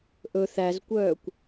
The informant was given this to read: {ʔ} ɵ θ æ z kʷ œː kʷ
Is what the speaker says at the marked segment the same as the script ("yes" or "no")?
yes